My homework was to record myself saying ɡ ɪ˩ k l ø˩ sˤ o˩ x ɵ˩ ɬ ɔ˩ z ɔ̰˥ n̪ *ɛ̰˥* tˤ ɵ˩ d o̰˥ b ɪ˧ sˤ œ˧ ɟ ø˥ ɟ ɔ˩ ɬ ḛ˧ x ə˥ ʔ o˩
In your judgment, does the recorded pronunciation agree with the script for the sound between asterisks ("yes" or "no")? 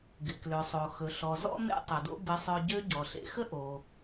no